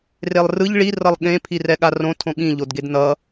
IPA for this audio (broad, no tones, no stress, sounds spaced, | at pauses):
r e lˠ r ɯ ʎ ɭ i r ʌ lˠ ɠ ẽ pʰ i r ɛ ɠ a r õ tʰ õ ɠ ĩ ʎ o d ɡ e d n ʌ